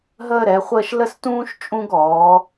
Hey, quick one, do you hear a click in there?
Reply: no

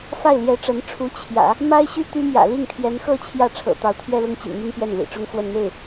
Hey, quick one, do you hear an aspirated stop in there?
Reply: yes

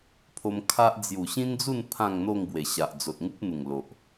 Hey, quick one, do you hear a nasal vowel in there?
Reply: yes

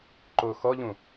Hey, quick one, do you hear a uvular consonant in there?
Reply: no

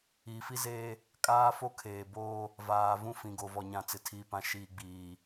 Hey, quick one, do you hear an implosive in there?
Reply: no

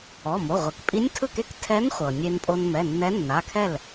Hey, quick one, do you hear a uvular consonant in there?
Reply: yes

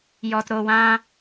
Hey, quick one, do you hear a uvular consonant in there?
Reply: no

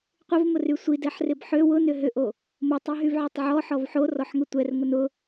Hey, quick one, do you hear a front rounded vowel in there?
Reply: yes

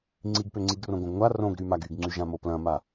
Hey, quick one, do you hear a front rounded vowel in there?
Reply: yes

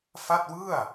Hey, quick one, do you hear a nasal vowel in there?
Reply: no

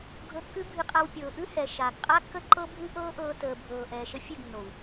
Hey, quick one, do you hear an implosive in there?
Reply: no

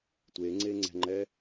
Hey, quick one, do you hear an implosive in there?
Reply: no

